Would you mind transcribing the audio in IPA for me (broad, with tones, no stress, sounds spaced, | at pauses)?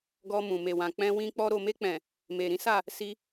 ɡ ɔ˧ m ũ˨ m e˨ w ã˨ k͡p ɛ̃˧ w ĩ˧ k͡p ɔ˧ ɾ o˨ m e˧ k͡p ɛ̃˨ | m e˨ ɾ ĩ˨˦ s a˦˨ | s i˧